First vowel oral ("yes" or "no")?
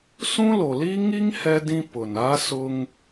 no